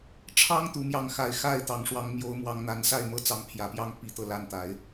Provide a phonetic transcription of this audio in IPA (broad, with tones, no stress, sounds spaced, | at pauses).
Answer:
ʈ͡ʂʰ ɑ˥ ŋ t̪ u˧˥ m j ɑ˥˩ ŋ x a˧˥ ɪ̯ x a˥˩ ɪ̯ t̪ ɑ˨˩ ŋ ʂ w ɑ˧˥ ŋ m j o˧˥ ʊ̯ m w ɑ˧˥ ŋ n̪ a˧˥ n s a˥˧ ɪ̯ m ɤ˥˩ t͡s ɑ˧˥ ŋ pʰ j ä˨˩ p j ɑ˥˩ ŋ p i˧˥ t̪ ɤ˧ l a˥˩ n t̪ a˨˩˦ ɪ̯